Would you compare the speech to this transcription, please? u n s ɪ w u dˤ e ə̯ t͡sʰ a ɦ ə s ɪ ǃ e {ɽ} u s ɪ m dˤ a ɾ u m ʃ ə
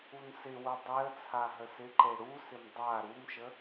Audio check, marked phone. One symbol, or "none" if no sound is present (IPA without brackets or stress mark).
ɽ